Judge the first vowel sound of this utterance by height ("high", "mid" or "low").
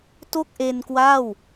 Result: mid